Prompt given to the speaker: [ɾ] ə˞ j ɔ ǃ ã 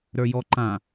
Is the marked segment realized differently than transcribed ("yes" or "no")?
no